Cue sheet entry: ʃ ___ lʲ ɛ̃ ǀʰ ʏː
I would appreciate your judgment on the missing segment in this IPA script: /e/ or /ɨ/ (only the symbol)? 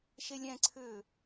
e